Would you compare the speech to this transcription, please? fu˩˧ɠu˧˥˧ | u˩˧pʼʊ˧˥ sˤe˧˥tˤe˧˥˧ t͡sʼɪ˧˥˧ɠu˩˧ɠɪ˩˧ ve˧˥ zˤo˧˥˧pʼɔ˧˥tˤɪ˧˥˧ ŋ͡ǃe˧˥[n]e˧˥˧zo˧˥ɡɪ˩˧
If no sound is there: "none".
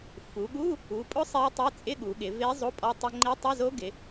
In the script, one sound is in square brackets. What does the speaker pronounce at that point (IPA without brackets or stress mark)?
tˤ